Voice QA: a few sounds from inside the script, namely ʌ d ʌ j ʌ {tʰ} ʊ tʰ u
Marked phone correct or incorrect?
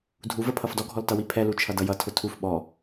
correct